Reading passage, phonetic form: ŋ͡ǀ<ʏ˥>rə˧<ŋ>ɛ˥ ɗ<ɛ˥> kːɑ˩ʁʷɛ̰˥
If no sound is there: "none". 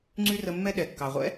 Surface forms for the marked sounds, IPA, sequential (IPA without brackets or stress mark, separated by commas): y˥, mː, ɛ˩